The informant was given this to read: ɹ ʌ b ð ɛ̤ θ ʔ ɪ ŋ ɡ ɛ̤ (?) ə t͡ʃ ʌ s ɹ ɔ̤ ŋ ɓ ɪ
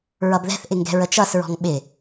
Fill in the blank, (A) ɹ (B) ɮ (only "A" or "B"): A